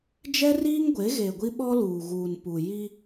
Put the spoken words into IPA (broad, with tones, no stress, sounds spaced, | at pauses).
d͡ʒ ɛ˦ r iː˦ ŋ ɡʷ e˨˦ ɣ e˨ ɡʷ i˦ ɓ ɔ˦ l uː˨ ɣ uː˨ n p u˨ j i˦